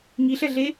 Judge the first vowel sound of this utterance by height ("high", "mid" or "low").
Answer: high